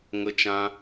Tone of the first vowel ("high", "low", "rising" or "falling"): high